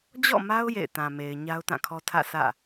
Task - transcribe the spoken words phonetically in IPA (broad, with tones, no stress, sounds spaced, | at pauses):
d͡ʑ ɔ̰˦˨ m a˦ ʊ̯ j ḛ˦˨ ɪ̯ t ã˨ m e˨ ɪ̯ ɲ a˦ ʊ̯ t ã˦˨ kʰ ɔ˦ tʰ ä̰˦˨ s ä̰˦˨